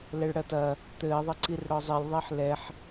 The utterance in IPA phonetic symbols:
l ɛ ɭ ɽ ɐ t ɐ | t̪ ɘː ðˤ ɘ ǀ i r ɽ ɔ zˤ e lʲ ðˤ e ħ l ɛ ħ

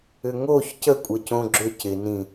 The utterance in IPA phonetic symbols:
ʏ ŋ o ç c ə kʷʼ ə c õ ɡ͡ǁ ʏ c ɪ n ĩ

